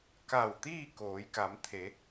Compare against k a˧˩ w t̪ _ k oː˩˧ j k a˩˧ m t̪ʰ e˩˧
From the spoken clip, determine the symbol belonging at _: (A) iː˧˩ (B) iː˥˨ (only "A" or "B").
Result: B